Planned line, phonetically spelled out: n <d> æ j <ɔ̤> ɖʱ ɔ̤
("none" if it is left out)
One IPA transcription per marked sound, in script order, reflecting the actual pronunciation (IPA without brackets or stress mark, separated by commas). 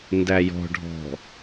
d, ɔ̤